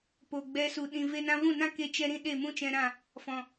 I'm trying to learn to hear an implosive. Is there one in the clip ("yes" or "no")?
yes